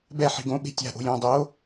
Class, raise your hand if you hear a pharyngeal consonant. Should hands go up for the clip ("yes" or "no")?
yes